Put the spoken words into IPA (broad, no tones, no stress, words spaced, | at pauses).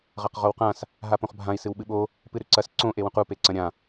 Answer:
ʁɐqʁowqãs | ɦapõχbʱãi̯ sɨwɓɨɓo | pɨɾʉǀɐs ǀõ ʔewũqu peǀɐ̃ɾʲã